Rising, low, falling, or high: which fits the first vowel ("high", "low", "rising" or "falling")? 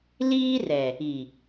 high